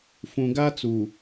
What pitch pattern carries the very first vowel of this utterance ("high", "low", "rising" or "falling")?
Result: low